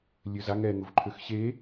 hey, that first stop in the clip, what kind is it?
click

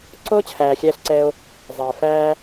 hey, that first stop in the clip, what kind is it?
click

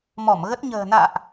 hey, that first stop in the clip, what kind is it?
plain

